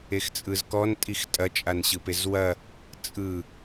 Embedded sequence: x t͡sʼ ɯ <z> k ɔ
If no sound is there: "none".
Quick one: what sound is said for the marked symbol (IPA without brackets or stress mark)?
z